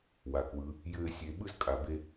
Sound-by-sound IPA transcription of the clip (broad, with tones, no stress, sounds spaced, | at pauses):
w a˩ k w ɯ˩˧ | j ɘː˥ sʲ e˧ ɓ ɯ˥ z kʼ a˩ b e˧